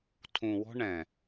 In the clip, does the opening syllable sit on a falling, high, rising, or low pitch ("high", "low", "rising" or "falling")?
low